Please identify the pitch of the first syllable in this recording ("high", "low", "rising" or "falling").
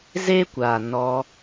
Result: high